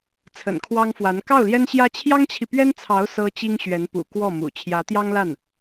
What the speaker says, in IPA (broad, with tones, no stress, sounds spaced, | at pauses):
t͡sʰ ə̰˨˩ n kʰ w ɑ˥ ŋ f w a˧˥ n k ɑ˥˩ ʊ̯ l j ɛ˥ n ɕ j ä˥ t͡ɕʰ j ɑ˥ ŋ t͡ɕʰ i˨ p ɥ ɛ˥ n t͡sʰ ɑ˧˥ ʊ̯ s ɤ˥ t͡ɕ i˥ ŋ ɕ ɥ ɛ˧˥ n p ṵ˨˩ k w ɔ˥˩ m ṵ˨˩ t͡ɕʰ j ä˧˥ t̪ j ɑ˥ ŋ l a˥˩ n